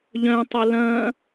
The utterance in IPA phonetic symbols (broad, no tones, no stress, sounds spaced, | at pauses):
ʎ œ̃ tˤ ɵ l ɐ̃